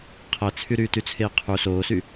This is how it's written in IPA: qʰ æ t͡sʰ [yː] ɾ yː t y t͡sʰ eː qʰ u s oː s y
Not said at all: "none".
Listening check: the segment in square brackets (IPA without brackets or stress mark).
y